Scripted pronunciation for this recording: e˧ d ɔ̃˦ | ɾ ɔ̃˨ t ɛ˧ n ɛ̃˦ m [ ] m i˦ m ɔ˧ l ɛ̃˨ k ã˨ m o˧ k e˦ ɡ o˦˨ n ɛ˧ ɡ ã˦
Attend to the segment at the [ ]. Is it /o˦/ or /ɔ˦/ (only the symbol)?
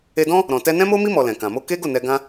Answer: o˦